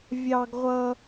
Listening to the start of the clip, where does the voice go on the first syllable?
high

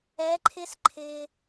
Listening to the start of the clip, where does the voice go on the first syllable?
rising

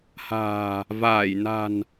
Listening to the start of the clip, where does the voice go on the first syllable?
low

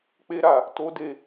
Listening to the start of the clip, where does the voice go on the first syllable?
high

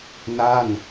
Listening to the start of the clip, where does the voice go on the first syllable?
falling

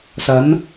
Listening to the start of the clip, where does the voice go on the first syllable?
rising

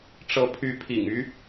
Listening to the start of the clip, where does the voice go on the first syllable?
rising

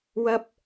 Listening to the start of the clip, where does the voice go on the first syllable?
low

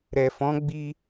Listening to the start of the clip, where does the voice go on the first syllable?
low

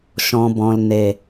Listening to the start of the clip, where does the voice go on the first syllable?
low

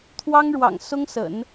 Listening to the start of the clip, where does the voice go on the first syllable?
high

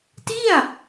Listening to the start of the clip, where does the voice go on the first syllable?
falling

